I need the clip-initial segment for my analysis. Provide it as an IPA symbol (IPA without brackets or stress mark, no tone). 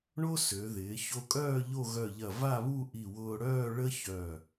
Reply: ɳ